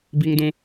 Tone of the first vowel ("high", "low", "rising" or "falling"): high